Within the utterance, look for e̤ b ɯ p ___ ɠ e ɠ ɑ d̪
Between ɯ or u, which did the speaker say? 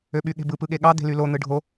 ɯ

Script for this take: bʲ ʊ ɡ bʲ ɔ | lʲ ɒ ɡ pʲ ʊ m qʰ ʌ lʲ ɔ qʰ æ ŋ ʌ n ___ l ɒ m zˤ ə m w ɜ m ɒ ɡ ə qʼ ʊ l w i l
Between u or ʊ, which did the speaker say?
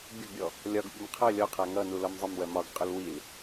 u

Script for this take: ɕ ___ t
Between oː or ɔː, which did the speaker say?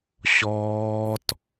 ɔː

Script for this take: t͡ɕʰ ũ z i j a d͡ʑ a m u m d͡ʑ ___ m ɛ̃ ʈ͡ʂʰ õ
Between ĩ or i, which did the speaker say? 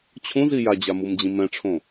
ĩ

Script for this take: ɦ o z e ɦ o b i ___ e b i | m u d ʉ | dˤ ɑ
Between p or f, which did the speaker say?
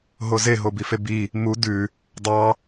f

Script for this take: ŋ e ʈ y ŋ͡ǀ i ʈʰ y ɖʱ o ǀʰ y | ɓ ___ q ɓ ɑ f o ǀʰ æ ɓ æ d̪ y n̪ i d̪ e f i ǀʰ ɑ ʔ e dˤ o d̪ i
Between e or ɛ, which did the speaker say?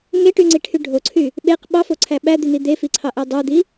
e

